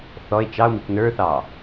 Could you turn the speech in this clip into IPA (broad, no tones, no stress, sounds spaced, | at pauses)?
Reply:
θ ɔ e̯ t͡ʃ ɑ o̯ m i k n ə˞ θ ɑ